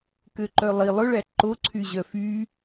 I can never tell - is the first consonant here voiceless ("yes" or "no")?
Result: yes